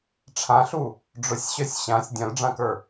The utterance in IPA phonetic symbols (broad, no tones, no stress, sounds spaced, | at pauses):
ʈ͡ʂʰ ã ɬ u | ɖ͡ʐ ʊ sʲ ɕ œ sʲ ɕ ã sʲ dʲ œ̃ l ɖ͡ʐ ã k ə˞